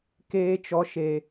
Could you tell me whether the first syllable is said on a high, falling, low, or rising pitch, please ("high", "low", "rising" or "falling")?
high